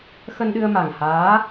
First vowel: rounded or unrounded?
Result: unrounded